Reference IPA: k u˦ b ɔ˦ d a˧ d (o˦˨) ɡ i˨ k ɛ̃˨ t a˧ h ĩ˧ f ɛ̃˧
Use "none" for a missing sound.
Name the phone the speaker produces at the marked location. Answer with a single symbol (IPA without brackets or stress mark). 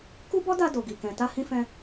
o˨